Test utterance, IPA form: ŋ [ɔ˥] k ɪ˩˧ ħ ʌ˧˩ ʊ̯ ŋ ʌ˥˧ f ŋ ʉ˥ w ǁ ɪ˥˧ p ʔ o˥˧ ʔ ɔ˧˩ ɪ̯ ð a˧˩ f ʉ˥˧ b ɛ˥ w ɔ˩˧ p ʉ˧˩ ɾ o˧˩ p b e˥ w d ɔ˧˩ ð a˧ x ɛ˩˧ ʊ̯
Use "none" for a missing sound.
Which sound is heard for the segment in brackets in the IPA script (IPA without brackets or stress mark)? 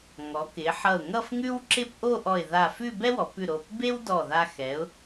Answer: ɔ˩˧